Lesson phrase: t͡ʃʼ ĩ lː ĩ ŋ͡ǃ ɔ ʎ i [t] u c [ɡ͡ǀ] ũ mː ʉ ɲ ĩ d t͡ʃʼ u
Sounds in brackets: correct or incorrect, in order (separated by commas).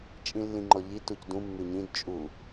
correct, incorrect